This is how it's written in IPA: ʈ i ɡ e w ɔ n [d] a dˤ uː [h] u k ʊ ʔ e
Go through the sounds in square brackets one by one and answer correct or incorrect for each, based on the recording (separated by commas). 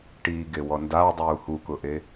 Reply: correct, correct